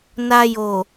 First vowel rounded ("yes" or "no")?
no